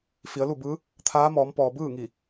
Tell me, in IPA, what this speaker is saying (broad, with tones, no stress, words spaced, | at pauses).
fi˩˧ə̯lu˥˨bɯː˧˥ | t̪ʰaː˧˥mɔː˩˧mpɔː˩ bɯː˥˨ŋi˧˩